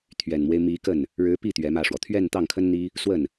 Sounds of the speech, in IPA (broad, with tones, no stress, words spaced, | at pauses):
t̪ʰɥɛ˨˩nmwe˦ɪ̯ mi˧˥kə˥˩n | ɻɻ̩˧˥pi˥˩ t̪ɥɛ˧˥mä˥˩ʂwɔ˩ t̪ʰɥɛ˥˧nt̪ɑ˥˩ŋkʰə˥n n̪i˥ | swə˥˩n